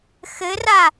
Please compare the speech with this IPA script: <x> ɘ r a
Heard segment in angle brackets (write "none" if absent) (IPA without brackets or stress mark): x